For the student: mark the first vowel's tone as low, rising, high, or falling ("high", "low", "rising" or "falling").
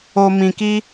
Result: low